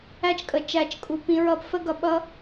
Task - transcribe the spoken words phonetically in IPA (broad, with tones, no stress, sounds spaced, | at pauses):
æ˧ t͡ʃ kʼ ə˨ t͡ʃ æ˨ t͡ʃ kʼ u˨ p ĩ˧ ɹ ʌ˧ p f ə˦ ɡ ʌ˧ ɓ ʌ˦